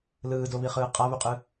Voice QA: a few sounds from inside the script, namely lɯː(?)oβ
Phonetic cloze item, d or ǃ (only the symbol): d